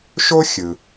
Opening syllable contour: high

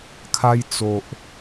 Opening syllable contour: high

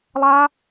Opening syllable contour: high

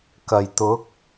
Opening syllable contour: low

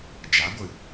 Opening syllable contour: rising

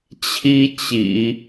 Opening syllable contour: high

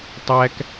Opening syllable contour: high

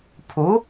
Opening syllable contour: rising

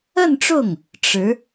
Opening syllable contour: falling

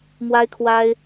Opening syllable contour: high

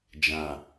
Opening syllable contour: low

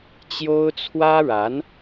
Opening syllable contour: high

